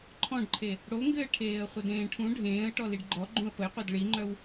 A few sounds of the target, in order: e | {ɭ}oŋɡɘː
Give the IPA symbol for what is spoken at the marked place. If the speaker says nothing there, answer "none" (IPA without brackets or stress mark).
ɽ